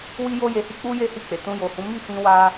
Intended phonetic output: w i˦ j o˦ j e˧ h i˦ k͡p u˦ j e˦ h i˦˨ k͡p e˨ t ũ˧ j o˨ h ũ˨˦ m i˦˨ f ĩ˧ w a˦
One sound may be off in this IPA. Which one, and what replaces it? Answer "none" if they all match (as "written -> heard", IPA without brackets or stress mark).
none